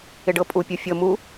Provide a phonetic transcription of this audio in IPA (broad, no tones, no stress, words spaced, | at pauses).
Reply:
ɪɖɤpʼu pʲufʲɤ mu